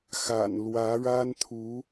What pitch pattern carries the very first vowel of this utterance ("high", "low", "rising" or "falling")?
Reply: low